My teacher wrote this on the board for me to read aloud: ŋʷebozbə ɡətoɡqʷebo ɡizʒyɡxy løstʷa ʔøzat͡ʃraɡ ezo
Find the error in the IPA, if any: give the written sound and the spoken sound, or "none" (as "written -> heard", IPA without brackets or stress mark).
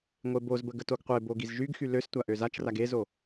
none